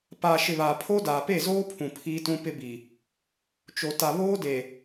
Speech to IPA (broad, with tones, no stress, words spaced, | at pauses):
paː˨ʃɪ˨ βa˨pʰo˦ daː˨pe˦˨zoː˦pʰũ˨ pʰiː˦tũ˦pɪ˦bi˨ | t͡ʃo˨ ta˨βoː˦de˨